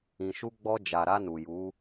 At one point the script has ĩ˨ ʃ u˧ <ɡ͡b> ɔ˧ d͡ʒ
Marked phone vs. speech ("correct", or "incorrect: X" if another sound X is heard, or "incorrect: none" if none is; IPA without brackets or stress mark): correct